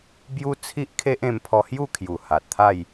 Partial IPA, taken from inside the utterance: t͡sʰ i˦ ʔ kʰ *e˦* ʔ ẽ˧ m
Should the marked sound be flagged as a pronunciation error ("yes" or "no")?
no